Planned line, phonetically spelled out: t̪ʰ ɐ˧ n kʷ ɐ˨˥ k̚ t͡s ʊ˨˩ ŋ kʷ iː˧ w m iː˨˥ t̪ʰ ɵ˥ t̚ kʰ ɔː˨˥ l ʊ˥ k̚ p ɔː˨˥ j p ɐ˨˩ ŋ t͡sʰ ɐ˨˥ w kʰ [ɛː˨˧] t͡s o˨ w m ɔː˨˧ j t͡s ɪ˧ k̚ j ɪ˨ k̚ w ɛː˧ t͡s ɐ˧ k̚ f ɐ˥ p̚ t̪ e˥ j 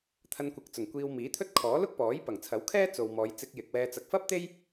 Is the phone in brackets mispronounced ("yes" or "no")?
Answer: yes